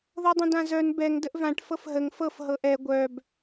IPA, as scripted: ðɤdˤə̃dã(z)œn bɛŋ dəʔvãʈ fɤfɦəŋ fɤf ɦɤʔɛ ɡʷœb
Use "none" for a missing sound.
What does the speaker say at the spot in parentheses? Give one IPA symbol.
z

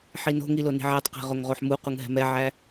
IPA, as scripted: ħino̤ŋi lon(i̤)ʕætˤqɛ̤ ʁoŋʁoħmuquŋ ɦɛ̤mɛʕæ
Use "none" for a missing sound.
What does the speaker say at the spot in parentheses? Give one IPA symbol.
i̤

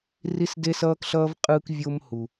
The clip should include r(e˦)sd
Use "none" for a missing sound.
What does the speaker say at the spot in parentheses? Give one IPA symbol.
i˦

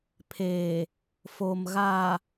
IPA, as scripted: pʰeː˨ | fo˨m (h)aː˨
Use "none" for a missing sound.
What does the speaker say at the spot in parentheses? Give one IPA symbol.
ɣ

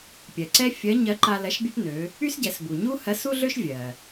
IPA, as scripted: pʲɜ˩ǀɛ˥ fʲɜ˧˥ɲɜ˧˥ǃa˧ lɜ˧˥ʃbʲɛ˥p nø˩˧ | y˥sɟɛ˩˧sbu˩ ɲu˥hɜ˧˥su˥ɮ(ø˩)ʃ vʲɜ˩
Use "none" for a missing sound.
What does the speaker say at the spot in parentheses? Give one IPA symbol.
ø˥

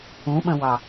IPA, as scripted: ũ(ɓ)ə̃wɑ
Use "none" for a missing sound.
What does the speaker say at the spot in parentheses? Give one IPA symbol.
ɓ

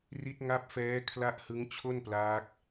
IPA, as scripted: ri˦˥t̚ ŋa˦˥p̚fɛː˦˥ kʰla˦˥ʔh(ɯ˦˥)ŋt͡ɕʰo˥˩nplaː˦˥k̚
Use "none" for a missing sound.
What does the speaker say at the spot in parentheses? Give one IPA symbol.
ɯ˦˥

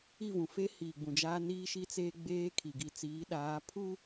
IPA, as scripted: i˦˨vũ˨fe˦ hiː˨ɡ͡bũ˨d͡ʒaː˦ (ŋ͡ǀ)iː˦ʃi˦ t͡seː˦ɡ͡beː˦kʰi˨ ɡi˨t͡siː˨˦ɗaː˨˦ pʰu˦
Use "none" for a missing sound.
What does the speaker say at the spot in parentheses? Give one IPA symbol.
n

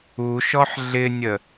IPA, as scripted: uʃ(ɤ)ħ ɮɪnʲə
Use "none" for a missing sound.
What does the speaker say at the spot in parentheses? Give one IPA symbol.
ɔ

